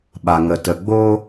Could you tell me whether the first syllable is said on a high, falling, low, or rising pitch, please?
low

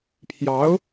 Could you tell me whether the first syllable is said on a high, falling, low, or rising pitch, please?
rising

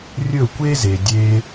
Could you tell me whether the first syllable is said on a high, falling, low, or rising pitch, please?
falling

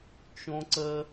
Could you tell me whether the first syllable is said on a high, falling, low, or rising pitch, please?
high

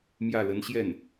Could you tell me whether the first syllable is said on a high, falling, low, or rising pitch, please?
falling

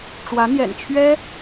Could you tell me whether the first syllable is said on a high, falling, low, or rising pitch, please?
rising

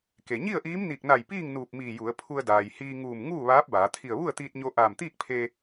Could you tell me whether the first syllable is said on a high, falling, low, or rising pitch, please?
low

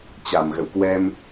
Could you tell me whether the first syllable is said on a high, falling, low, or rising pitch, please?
low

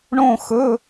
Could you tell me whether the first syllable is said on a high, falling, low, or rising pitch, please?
falling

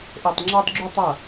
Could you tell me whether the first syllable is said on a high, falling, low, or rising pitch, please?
low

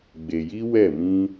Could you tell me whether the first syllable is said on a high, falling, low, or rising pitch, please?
low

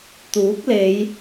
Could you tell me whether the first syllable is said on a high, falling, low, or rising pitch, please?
rising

